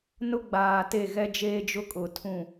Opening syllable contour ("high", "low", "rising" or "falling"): high